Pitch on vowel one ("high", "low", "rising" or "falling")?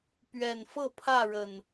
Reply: low